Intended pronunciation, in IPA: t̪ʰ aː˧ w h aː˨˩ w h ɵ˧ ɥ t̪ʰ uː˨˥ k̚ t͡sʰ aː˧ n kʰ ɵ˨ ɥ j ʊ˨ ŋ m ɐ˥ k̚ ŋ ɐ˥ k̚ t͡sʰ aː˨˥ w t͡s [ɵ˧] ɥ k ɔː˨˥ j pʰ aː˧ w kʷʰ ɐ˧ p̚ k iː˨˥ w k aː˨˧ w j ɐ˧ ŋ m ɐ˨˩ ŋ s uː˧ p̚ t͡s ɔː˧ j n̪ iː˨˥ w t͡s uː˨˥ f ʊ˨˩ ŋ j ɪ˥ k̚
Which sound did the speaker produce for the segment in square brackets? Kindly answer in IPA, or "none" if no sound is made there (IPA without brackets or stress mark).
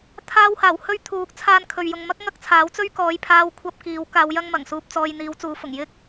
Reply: ɵ˥